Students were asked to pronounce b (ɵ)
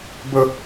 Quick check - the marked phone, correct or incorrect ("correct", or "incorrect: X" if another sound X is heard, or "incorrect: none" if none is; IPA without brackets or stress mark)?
correct